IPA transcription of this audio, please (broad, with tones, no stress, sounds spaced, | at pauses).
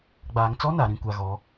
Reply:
ɡ͡b aː˨ ŋ t͡s ɔ˦ n a˨ ɾ ĩ˨ kʷ a˨ ɣ ɔ˨˦